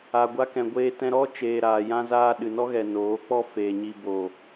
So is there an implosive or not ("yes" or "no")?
yes